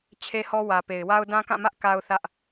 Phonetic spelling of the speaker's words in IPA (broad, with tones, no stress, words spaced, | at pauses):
t͡ɕʰe˦hɔ˦wä˨ pe˨ɪ̯wa˦ʊ̯ dã˦kã˦˨mä˦ʔ ka˦ʊ̯θä˦ʔ